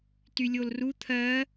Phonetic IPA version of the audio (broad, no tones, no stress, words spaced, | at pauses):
tylʲolru t̪ʰɜ